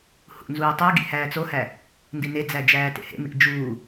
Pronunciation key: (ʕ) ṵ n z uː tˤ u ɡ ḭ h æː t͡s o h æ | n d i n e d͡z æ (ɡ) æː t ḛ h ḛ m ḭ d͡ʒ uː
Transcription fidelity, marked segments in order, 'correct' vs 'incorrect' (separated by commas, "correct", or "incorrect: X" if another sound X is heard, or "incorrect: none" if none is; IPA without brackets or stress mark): incorrect: h, incorrect: d͡ʒ